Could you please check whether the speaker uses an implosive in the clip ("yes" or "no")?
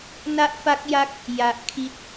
no